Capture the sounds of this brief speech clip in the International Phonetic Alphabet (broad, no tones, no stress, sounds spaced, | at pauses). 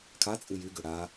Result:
kʰ a t͡sʼ ɨ j y ɡ ʏ ɽ a